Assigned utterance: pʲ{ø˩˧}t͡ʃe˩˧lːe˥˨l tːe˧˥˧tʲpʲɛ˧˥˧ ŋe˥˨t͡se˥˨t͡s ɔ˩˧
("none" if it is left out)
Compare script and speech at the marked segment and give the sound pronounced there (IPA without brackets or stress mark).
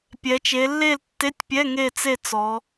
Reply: ɛ˩˧